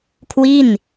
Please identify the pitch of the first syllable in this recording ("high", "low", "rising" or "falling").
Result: falling